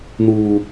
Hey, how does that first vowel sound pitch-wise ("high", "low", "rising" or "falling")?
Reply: high